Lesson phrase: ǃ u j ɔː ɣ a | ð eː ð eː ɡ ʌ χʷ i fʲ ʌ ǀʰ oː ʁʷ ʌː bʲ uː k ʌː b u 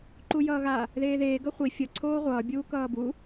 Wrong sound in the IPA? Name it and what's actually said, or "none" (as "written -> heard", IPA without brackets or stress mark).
ɔː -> ʌː